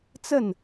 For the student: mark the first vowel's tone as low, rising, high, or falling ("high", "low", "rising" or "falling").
falling